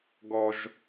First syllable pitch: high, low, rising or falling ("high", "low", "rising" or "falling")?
low